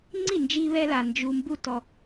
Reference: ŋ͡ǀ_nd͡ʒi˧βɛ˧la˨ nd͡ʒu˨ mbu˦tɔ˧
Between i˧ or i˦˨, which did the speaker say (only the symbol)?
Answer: i˦˨